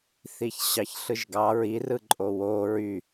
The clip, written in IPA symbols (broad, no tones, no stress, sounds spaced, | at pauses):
θ i ç ɕ ɑ ç ɬ ɯ ʒ ɡ ɑ ɹ i r ɯ ǃʼ o w o ɹ y